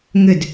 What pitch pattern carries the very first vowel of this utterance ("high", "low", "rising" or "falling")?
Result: falling